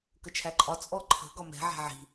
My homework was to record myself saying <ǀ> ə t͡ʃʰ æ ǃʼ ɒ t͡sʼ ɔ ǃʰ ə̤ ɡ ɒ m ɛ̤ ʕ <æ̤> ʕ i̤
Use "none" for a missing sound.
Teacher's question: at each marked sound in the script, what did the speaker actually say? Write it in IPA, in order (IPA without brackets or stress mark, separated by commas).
k, æ̤